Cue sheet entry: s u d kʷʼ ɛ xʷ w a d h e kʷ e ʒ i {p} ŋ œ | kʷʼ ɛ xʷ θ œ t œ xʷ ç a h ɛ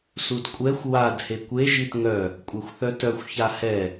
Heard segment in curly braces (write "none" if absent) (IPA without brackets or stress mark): t